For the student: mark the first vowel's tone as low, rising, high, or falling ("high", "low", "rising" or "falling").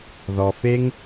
low